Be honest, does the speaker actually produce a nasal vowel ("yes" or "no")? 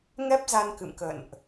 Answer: no